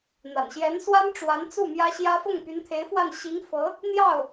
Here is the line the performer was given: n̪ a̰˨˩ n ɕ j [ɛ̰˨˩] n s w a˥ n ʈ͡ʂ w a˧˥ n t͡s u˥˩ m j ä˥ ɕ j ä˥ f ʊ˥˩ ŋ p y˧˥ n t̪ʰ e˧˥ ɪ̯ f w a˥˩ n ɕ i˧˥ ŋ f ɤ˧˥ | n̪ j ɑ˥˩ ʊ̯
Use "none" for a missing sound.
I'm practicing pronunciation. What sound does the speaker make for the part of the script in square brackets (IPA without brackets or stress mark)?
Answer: ɛ˧˥